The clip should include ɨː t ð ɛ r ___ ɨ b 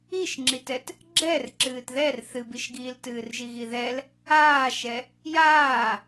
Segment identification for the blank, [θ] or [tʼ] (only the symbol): θ